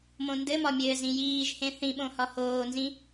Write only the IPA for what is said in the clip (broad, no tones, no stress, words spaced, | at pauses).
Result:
mõndɘmɒ mʲɘːzĩjiːʒhẽ θĩɓõ hɒhoːnzĩ